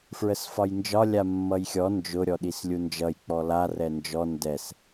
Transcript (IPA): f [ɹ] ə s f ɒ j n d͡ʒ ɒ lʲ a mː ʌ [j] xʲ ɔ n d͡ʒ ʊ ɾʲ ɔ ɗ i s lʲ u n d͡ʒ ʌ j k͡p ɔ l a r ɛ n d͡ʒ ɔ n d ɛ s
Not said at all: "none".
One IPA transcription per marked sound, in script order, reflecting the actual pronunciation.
ɹ, j

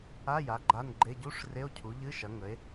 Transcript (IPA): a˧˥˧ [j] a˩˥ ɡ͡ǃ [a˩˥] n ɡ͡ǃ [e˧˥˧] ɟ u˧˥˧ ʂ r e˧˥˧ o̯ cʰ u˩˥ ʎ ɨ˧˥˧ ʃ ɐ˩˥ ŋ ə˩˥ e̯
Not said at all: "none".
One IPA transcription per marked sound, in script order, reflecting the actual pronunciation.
j, a˧˥˧, e˧˥˧

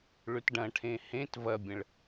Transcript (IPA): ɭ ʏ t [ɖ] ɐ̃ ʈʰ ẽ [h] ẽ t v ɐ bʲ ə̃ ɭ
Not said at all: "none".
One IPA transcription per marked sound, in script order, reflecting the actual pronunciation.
ɖ, h

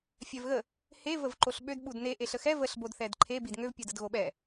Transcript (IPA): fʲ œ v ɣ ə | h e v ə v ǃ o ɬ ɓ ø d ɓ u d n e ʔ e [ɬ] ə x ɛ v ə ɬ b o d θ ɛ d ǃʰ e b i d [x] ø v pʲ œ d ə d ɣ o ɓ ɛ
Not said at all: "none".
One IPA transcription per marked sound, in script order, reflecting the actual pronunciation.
ɬ, ŋ

